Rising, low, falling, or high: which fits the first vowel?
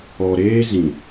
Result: low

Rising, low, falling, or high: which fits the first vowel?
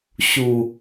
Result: low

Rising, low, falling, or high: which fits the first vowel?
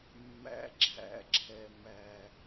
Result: low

